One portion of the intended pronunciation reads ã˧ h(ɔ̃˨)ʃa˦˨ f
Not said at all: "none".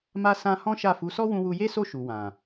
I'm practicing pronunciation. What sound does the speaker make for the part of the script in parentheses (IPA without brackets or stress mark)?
ɔ̃˦